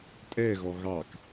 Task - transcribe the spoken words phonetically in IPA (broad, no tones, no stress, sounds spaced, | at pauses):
tʼ ɛ ɣ ɔ ɣ ɑ k